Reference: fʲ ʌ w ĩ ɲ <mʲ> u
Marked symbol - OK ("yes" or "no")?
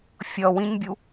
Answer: no